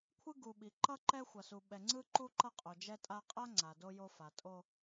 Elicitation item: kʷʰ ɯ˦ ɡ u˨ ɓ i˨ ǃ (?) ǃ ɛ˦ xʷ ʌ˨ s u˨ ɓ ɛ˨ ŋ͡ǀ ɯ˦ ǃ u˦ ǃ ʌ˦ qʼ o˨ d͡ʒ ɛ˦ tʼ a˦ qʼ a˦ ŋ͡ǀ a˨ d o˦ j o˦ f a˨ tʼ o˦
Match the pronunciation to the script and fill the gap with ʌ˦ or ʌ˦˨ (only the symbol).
ʌ˦